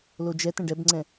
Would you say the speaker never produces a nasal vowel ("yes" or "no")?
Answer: no